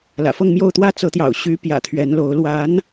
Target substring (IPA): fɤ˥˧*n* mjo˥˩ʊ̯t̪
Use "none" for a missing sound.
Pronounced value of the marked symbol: ŋ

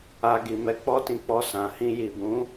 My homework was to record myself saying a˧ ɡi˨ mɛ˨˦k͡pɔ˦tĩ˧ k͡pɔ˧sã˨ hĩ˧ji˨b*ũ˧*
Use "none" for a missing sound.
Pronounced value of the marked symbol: ũ˨˦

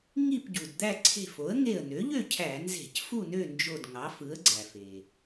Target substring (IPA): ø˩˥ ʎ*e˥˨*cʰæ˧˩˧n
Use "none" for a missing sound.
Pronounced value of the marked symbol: ø˥˨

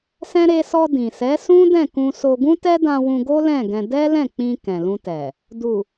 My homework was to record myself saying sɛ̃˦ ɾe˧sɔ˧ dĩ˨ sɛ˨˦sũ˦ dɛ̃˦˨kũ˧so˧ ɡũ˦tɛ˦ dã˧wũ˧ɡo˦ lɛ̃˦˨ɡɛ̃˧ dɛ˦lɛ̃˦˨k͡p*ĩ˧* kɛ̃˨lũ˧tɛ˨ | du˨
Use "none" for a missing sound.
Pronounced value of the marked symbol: ĩ˧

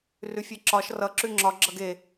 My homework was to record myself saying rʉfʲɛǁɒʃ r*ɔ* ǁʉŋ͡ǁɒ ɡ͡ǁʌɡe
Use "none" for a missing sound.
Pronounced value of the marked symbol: ʌ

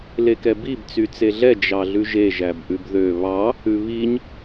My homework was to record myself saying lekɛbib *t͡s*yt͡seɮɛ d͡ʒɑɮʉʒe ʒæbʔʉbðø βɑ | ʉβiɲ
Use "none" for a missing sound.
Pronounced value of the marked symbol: t͡s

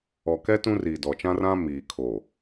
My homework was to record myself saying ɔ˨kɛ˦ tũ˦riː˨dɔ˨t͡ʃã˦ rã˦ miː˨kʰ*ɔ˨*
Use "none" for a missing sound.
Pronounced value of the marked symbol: o˨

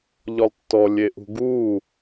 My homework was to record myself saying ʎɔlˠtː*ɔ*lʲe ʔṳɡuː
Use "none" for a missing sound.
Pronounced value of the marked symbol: ɔ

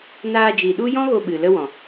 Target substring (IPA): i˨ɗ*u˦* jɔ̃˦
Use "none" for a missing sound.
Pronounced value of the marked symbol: u˦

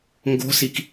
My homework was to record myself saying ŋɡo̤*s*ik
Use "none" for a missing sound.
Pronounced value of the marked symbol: s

